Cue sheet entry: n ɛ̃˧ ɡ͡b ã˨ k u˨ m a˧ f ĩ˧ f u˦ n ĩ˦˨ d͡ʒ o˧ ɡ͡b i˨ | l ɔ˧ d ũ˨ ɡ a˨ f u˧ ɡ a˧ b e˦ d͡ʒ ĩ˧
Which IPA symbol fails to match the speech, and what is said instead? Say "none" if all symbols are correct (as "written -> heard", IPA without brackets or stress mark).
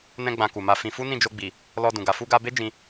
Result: none